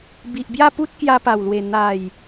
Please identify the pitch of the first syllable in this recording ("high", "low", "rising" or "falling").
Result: low